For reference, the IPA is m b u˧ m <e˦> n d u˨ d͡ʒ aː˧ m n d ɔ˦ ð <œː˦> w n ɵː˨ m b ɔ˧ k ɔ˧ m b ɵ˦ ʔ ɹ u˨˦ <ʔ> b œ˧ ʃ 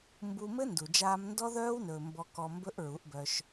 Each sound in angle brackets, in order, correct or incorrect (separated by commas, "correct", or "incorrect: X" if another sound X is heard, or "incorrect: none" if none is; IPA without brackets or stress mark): incorrect: ɘ˦, correct, correct